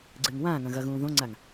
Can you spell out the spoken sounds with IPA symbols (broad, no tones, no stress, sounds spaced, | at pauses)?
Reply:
ɡ͡ǀ ɨː ŋ w ãː ŋ ɐ̃ ɣ ɐ ɣ ũː ð õ ŋ͡ǀ a ŋ